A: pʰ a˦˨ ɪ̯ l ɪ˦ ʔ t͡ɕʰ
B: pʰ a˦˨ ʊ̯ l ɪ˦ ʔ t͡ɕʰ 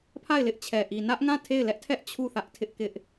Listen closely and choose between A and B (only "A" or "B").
A